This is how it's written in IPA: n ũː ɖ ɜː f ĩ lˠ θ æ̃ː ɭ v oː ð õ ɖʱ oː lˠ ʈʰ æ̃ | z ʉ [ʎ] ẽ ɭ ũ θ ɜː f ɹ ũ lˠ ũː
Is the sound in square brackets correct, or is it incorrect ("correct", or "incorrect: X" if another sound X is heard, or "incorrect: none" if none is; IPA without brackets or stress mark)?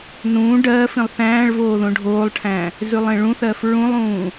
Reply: incorrect: lˠ